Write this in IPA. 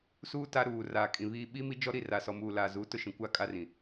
s uː˦ t a˦ ɾ uː˨ r aː˨ kʼ ĩ˨ β iː˦ ɓ i˦ m i˦ d͡ʒ ɔ˦ ɾ i˦˨ r a˨ s ɔ˨ m uː˨ l aː˨ z u˨˦ t ʊ˦ ʃ ĩ˨ kʷ a˦ kʼ a˦ r ĩ˨

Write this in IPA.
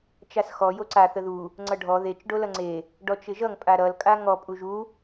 t͡ʃ a s x ɔ j o ǀ a θ ə ð u | ŋ͡ǀ ʌ ɖʱ ɔ ð e t͡ʃ ɖ o l ʌ ŋ͡ǀ e | ɖ ɔ t͡ʃ ɪ ʒ ʌ ŋ pʼ a ɾ ʌ l kʼ a ŋ ɔ pʼ u ʒ u

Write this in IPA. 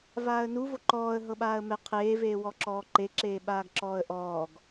v aː ə̯ n u v o ǃ ɔː ə̯ ɦ ɤ ɓ aː ə̯ m ɛ qʰ eː v eː w ɔ ǁ ɔː ǃ e ǁ eː ɓ aː ɡ ǁ ɔː ə̯ ʔ ɔː ɡ

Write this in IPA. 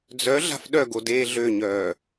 d͡z œ ɮ a̤ f ɗ œ ɡ o d eː ɮ ø ɲ œː

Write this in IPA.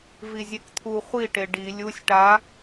v i zʲ e k t̪ʰ u χʷ i ʈ e ɖ i lʲ u sʲ ʈ a

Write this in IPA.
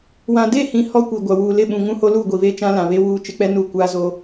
w ã˨ d e˦˨ h ĩ˨ h ɔ˦ kʷ i˨ ɡʷ a˨ w uː˨ l ɪ˦˨ ɓ ũ˨ ŋ ũ˦ h o˦ l uː˦˨ ɡʷ i˨ β eː˦ t͡ʃ ã˦ l ã˨ β e˦ w uː˦˨ t͡ʃ ɪ˦ k͡p ɛ˦ n uː˦ kʷ aː˦ z o˦

